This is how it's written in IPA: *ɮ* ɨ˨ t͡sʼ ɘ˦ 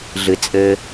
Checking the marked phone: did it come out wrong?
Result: no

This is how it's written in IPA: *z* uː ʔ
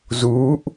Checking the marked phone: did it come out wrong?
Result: no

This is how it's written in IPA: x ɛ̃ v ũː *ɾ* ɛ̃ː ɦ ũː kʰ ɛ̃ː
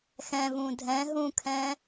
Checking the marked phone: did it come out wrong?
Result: yes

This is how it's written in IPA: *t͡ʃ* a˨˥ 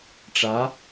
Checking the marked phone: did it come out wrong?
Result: yes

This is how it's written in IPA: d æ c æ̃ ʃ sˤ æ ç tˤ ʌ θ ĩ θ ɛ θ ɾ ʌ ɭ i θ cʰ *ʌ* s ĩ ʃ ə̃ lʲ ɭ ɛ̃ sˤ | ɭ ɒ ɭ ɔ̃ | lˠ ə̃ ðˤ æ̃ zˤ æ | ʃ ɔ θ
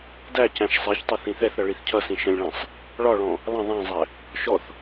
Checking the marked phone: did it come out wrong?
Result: no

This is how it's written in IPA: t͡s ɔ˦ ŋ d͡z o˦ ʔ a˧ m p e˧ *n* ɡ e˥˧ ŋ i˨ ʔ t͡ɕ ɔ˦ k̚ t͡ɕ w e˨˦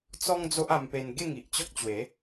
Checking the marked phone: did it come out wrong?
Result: no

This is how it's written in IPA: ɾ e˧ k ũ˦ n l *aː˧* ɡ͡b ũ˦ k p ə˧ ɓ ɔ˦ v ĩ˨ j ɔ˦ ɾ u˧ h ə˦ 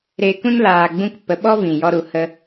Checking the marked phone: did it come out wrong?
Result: no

